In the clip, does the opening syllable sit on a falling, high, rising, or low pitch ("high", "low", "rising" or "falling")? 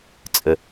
low